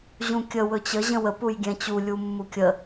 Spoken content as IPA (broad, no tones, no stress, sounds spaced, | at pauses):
ʑ ũ kʲ ə w ɵ t͡ɕ ə ʑ ə̃ w ə p u j ɡʲ ɛ̃ t͡ɕ u lʲ u mː u kʲ ə